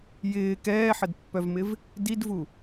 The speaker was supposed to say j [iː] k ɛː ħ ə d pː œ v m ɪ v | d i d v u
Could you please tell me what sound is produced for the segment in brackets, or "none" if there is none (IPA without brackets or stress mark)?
ɪː